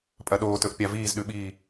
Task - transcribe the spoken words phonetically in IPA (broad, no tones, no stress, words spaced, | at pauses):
pʼɐɗoːtɵʔ pʲaviːzɗʉɓiː